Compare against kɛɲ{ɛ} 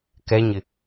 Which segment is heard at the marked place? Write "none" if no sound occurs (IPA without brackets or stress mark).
ɪ